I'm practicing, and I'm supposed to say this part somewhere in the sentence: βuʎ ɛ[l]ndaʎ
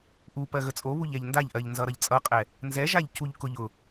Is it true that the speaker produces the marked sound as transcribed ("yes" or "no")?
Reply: no